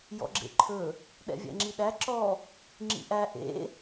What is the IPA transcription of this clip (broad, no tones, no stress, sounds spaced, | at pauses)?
j ɔ̰ ɡ͡ǁ ḛ ǃʰ ɵ | ɗ ɛ̰ vʲ æ̰ ŋ͡ǁ i ɗ æ ǁ ɔ | ŋ͡ǁ ḭ ʔ æ ʔ ḛ